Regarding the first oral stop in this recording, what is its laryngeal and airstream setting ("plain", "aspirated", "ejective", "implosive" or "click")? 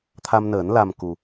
aspirated